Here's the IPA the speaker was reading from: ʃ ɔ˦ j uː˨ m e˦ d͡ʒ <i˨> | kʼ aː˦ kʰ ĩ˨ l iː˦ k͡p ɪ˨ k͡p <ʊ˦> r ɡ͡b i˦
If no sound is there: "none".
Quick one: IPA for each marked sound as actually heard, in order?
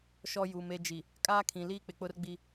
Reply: i˨, ʊ˦

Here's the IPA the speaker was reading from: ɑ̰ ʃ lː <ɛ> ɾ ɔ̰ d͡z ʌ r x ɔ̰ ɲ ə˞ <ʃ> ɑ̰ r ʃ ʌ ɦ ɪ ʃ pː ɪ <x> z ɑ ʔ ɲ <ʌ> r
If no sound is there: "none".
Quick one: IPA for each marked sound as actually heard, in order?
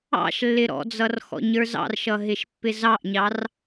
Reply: ɪ, z, none, ɑ

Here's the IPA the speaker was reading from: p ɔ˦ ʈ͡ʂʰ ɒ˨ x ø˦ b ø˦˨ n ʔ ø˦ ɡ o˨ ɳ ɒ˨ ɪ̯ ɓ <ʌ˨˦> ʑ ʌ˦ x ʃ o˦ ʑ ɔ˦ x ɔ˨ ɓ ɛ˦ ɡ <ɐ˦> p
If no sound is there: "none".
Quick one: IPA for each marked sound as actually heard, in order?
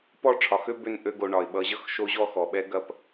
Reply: ʌ˨˦, ɐ˦

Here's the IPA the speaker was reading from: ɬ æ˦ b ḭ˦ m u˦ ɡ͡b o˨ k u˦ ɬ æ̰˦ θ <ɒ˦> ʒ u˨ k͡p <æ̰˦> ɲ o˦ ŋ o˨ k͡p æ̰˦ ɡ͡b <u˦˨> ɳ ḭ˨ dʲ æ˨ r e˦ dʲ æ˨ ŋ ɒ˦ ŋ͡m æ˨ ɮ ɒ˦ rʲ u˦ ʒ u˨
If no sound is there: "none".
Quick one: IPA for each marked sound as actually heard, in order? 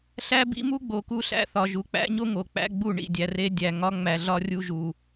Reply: ɒ˨, æ̰˦, u˦˨

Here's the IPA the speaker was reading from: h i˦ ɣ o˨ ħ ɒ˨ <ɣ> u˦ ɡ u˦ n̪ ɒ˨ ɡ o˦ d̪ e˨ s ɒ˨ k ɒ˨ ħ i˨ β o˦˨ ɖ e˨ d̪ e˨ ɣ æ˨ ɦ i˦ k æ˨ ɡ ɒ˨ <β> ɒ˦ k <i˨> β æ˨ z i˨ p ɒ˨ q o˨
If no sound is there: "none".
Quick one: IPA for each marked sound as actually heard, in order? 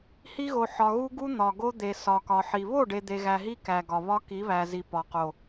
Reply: ɣ, β, i˨˦

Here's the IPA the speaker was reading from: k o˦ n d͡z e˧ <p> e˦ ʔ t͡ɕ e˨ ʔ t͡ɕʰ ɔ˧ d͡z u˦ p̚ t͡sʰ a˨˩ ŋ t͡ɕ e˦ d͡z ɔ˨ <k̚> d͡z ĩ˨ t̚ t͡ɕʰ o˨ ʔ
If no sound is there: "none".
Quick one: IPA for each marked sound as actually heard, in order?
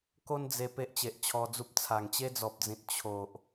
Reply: p, p̚

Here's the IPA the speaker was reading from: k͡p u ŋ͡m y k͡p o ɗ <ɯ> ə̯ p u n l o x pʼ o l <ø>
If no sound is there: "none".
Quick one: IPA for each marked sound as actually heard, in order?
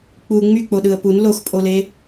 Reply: ɯ, e

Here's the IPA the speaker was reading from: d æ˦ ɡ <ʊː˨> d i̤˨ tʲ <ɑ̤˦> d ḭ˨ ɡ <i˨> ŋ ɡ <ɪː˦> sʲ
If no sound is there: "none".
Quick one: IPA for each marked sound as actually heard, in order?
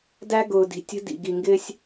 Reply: ʊː˨, ə̤˦, i˨, ɪː˦

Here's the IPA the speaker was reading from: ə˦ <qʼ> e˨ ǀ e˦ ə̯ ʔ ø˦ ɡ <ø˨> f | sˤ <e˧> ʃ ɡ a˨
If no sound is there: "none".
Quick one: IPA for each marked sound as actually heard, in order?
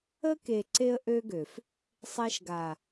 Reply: k, ø˨, e˧

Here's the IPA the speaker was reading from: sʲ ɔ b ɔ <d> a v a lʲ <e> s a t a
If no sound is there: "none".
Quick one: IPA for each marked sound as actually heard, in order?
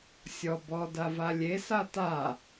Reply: d, e

